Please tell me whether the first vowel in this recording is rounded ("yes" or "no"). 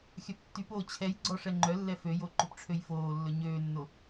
yes